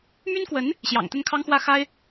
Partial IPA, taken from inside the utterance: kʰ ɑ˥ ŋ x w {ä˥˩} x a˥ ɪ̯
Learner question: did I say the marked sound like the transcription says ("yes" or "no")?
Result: yes